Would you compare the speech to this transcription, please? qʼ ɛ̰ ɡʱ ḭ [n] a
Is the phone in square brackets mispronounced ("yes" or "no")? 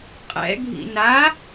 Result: no